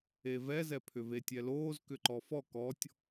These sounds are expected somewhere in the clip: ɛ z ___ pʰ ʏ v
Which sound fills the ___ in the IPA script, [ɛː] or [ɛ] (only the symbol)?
ɛ